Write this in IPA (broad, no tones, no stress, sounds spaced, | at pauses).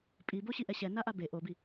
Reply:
pʼ i b o ɕ i ʔ ɛ ɕ ɛ n a ʔ a b e ʔ o b i